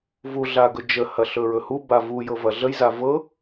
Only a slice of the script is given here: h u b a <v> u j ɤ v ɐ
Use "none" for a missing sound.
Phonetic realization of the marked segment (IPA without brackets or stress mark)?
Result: v